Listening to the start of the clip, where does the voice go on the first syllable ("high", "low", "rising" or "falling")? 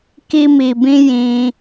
high